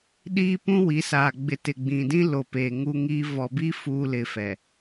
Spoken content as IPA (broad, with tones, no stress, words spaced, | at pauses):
ɗiː˦pũ˦wi˨˦ saː˨ɡ͡bɪ˨ tɪ˨ɡ͡bĩ˨dĩ˦ lo˨peː˨ ŋu˦ŋiː˦ vɔ˨bi˦ fuː˦ lɪ˨fɛ˨